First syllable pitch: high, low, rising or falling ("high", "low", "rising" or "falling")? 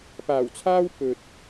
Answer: low